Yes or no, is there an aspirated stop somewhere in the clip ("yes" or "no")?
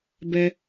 no